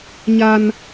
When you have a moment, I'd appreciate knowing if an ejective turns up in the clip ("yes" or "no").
no